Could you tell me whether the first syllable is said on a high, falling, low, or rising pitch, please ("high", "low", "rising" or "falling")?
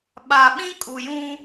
low